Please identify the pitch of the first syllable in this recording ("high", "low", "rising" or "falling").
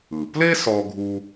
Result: low